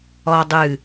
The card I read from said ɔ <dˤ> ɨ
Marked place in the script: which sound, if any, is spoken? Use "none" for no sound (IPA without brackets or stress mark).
dˤ